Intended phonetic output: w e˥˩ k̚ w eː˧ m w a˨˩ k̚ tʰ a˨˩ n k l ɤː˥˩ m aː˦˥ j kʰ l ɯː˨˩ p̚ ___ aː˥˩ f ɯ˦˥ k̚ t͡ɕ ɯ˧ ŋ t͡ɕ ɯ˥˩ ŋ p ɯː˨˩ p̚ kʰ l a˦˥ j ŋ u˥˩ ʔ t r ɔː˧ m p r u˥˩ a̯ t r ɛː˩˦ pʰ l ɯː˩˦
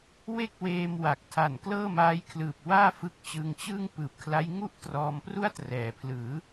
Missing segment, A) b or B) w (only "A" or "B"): B